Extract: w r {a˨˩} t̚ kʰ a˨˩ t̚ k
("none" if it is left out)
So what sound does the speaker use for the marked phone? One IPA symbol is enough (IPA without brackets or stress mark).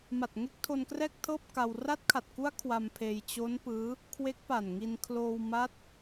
a˦˥